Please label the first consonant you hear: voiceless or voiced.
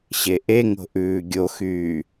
voiceless